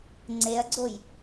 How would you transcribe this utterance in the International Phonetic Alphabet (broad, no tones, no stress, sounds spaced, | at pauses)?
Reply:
ŋ͡ǀ e ɐ̯ ɡ͡ǀ o j